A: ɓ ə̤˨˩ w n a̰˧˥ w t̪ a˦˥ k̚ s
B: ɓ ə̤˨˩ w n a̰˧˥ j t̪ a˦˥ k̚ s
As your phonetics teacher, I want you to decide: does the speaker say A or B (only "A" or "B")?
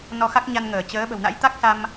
B